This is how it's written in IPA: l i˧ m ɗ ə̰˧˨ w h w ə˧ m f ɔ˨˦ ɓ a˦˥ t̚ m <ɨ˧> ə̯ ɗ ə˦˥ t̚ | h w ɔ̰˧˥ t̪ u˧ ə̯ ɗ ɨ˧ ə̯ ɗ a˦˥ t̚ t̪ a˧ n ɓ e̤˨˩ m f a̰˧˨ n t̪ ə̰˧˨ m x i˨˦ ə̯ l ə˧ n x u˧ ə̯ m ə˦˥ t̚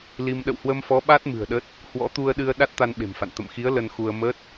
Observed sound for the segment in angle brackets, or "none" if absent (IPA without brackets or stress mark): ɨ̤˨˩